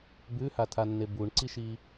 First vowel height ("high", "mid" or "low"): high